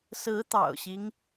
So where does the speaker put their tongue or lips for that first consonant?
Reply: tongue tip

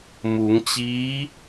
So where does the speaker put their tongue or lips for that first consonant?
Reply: lips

